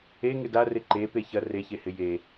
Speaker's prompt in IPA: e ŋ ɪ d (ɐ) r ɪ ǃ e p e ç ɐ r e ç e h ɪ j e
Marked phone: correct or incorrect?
incorrect